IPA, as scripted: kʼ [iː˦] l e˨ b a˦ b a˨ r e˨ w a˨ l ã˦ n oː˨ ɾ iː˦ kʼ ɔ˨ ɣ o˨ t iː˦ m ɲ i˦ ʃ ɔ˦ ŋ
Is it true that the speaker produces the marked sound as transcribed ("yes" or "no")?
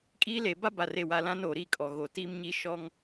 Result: yes